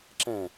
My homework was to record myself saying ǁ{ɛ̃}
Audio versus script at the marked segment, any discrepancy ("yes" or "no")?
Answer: no